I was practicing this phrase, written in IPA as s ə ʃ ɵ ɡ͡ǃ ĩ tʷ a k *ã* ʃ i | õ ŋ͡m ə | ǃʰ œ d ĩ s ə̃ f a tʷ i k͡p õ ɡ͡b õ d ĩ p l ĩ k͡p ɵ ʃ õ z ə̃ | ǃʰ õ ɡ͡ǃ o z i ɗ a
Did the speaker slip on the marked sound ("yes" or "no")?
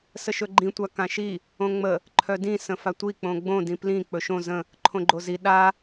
no